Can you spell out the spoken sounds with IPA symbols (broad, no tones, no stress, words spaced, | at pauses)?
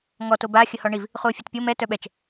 ŋɔ toba xʲəhɔɳiv | χuo̯fʲœtpʲo mɛ tœɓɛt͡ʃ